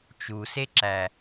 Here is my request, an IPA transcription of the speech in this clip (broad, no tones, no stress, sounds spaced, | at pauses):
t͡ʃ u s e ǁ æ